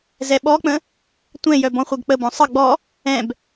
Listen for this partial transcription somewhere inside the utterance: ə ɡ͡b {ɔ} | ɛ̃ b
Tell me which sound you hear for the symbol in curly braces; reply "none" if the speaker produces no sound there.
ɔ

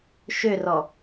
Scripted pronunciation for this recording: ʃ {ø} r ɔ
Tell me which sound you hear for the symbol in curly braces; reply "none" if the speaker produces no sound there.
ø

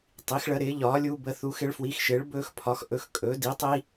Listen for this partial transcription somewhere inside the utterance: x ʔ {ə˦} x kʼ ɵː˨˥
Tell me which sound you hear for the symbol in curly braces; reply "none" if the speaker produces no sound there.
ɵ˦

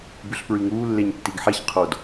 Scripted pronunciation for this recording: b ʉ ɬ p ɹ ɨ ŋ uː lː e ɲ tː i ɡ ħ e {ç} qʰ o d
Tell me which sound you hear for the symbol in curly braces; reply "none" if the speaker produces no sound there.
ç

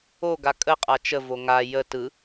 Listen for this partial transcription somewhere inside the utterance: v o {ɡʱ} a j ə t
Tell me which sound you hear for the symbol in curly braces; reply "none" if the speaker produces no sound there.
ŋ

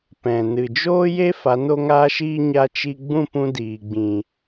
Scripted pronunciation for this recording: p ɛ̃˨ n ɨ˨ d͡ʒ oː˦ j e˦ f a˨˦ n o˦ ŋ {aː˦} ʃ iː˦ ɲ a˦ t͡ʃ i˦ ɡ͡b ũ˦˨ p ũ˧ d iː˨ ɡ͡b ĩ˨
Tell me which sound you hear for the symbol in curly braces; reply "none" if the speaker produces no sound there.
aː˦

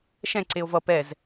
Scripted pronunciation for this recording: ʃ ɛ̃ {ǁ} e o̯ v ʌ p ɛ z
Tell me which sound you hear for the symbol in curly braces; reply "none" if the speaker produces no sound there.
ǀ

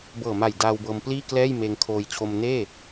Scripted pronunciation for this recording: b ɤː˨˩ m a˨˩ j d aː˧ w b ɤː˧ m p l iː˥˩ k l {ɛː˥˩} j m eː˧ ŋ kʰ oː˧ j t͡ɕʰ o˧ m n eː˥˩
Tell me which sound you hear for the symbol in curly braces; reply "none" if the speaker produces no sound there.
ɛː˥˩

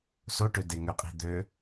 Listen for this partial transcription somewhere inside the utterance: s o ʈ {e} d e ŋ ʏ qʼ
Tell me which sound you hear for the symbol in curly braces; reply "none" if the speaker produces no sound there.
ø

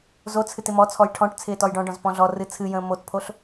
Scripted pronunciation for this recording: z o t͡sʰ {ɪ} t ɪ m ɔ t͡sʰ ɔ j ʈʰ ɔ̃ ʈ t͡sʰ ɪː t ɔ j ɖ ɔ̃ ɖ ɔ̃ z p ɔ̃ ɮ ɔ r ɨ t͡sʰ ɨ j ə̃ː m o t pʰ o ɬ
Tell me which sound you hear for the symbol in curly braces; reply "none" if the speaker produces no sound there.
ɨ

